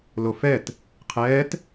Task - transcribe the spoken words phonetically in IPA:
l o f ɛ t | qʰ ɛː t

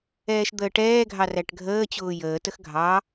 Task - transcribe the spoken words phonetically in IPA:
ɛː ʃ d̪ əː ʈ ɛː ɡʱ ɑ r æ ʈ ɡʱ əː t͡ɕ ʊː j əː t ə x ɡʱ ɑ

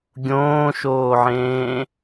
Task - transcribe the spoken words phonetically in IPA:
ɡʲ õː ʃ oː ʕ ẽː

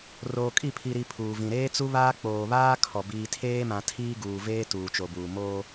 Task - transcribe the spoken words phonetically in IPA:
r oː˨ kʼ i˦˨ pʰ i˨ ɾ i˨ pʰ uː˨ v ĩ˨ ɾ eː˦ t͡s u˦ β aː˦ k͡p oː˨ β aː˦ kʰ ɔ˨ b iː˨ tʰ eː˦ m ã˨ tʰ iː˦ ɡ uː˨ v eː˦ t uː˨ t͡ʃ o˨ b uː˨ m oː˦

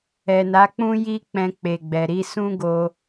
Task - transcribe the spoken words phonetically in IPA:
ɛ˨ n a˨˦ k͡p ũ˦ j i˦ k͡p ɛ̃˧ k͡p e˨ ɡ͡b ɛ˨ ɾ i˨˦ s ũ˦ ɡ o˧

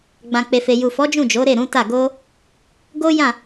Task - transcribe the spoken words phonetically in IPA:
ɡ͡b ã˨ k͡p e˨ f e˨ j u˨ f ɔ˨˦ d͡ʒ ũ˦˨ d͡ʒ o˨˦ ɾ e˦˨ ɾ ũ˨˦ t a˦˨ ɡ o˧ | ɡ o˦ j ã˦˨

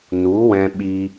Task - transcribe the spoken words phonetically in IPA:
n u˨˦ w ɛ̃˧ ɓ iː˧

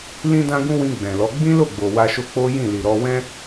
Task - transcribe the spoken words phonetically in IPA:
l ĩ˦ d ã˦ ɡ ũ˦ w ĩ˧ ɡ͡b ɛ̃˨ l ɔ˨˦ ɡ͡b ĩ˦ l o˦˨ ɡ͡b o˨ w a˧ ʃ o˧ k͡p o˦ j ĩ˦˨ l i˨ ɾ ɔ˧ w ɛ̃˦

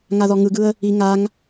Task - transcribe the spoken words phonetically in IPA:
ŋ a ð ɔ ŋ ɯ ɡ ɯ ə̯ | i ŋ a ŋ

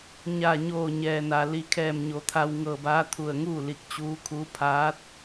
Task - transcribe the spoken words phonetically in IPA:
ɲ a˧˩ ɲ oː˧˩ ɲ ɛː˩ n a˩ l i˩ kʰ ɛː˧˩ m ɲ o˩˧ t̪ʰ a˧ w ŋ ɤː˧˩ b aː˧˥ t̪ʰ u˧˩ ə̯ ŋ uː˥˨ l i˧˩ k̚ t͡ɕ uː˧˥ kʰ uː˧˥ pʰ aː˧˥ t̚

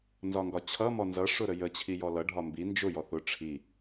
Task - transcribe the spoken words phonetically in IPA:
n z ɒ ŋ ɡ ɒ t͡ɕʰ ʌ m ɔ n z ʌ ʂ ʊ ɾ ə j ə t͡ɕʰ i j ɔ l ʌ ɖʱ ɒ m b i n d͡ʒ ʊ j ɔ θ ʊ ʈ͡ʂʰ i

